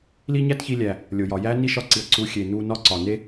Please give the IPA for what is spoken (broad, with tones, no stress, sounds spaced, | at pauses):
l i˦ ɲ æ˦ t ç i˧ lʲ æ˨ | lʲ o˨ j ɒ˨ j æ˦ n i˦ ʃ ɒ˧ ǀ i˨ ɐ̯ ǀ u˨˦ xʲ e˨ n u˧ n ɒ˦ ǀ ɒ˨ n e˦